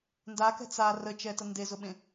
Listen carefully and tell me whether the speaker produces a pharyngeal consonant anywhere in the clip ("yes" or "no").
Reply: no